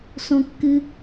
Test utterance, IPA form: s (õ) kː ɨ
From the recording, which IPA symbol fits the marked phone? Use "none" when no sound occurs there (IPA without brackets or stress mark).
õ